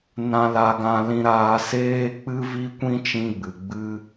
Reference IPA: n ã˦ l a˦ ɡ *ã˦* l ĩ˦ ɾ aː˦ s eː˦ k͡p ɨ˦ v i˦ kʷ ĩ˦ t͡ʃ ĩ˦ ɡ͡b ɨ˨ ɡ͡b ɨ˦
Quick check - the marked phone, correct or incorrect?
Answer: correct